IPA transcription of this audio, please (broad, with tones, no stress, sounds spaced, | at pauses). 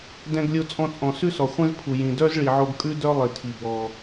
d ɛ̃˧ ɡ lʲ o˧ t͡sʼ ɔ̃˧ t͡sʼ ɔ̃˩ s ʉ˥ s ɔ˩ χʷ ɛ̃˥ z pʰ u˩ j ĩ˩ d œ˥ z ɭ i˩ ʕ o˧ ɡ kʼ ʉ˥ d œ˥ lˠ i˩ tʰ i˩ b ɔ˩